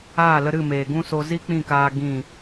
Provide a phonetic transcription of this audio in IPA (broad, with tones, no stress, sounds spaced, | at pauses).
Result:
aː˦˨ l ə˧ ɾ ɨ˦˨ m eː˨ ɡ ũ˦ s o˧ z i˦ k͡p ĩ˦˨ k aː˧ ɡ ĩ˦˨